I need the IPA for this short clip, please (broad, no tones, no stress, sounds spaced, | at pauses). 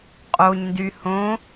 qʼ o ɲ n d y h õ